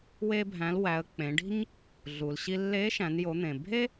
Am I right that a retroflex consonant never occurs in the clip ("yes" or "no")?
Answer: no